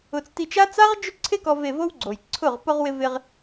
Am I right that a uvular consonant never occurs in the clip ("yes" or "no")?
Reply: no